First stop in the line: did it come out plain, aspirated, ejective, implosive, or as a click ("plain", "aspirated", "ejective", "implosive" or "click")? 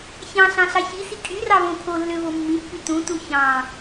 ejective